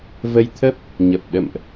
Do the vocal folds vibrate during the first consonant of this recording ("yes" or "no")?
yes